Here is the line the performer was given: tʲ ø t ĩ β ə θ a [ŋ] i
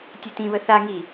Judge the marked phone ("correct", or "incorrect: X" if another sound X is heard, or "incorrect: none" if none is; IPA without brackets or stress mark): correct